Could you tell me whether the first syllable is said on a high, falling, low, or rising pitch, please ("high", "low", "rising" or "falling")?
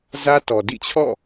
high